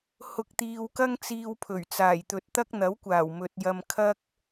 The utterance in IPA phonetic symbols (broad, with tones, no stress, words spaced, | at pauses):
hʊ˨k̚t̪iː˨wkɐ˥ŋ t͡siː˧wpʰɵ˨˩ɥt͡saː˨˩jt̪ɵ˨t̚ t̪ɐ˥k̚ n̪ɐ˨˥wkʷaː˨˩w mɵ˨t̚jɐ˧m kʰɐ˥k̚